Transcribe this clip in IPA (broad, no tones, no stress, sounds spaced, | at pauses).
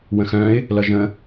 w ə̃ x œ̃ ɪ̯ | l ʌ ʒ ə̃